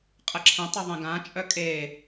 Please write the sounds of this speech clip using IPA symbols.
qʼ ə ǁʰ ə̃ tˤ ə ðˤ ẽ ɡ ã t͡ʃʼ œ kʼ e

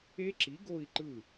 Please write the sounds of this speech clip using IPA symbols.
e˦˥ ǁ i˨˥ ɡ o˥˧ i̯ ǃ ɯ˥˩

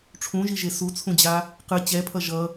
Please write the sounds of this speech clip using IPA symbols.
ʈ͡ʂʰ ũ ʒ i ʒ e s u t͡sʰ ũ d͡ʑ a | q ɯ t͡ɕ ɛ pʰ ʌ ʒ ʌ

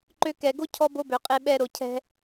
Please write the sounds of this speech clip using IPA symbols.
ǃ ø˧ k ɛ˨ ɡ o˦ cʰ ɔ˦ b o˦ b ø˨ qʼ e˧ ɓ ɛ˧ ɾ o˨ cʰ ɛ̤˧

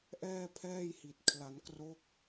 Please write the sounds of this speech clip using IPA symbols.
ʔ ɛː˥˩ pʰ ɛː˥˩ j h i˨˩ t̚ kʰ l a˩˦ n k r o˦˥ k̚

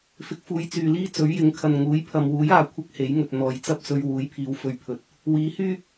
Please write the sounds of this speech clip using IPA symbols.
f ɪ˧ k̚ f uː˧ j t͡s yː˨ l iː˥ t͡s ɵ˨˥ ɥ j ɪ˨˥ ŋ kʰ ɐ˨ n ŋ uː˨˥ j pʰ ɐ˨ m w uː˨˥ j aː˨ kʷʰ ɐ˥ k̚ h e˨˥ j ŋ ɵ˨ t̚ n̪ ɔː˨ j t͡s ɐ˥ p̚ s ɵ˧ ɥ w uː˨˥ j pʰ iː˨˧ w f ɵ˧ ɥ pʰ ɵ˨ t̚ | w iː˨˥ h yː˥

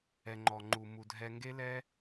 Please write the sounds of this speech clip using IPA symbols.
ɛ˨ ŋ͡ǃ ɔ˨ ŋ͡ǃ u˨ m u˨ dʱ ɛ˧ ŋ ɡ e˦ l ɛ˦

